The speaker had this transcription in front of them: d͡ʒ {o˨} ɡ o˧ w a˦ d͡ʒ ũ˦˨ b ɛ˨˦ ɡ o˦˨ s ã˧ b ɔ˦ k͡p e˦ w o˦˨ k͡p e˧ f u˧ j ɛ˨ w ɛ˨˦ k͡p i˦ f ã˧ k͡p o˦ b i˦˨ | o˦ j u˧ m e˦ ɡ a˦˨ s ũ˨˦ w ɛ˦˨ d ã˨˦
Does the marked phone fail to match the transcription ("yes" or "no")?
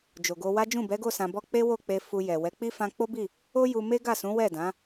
no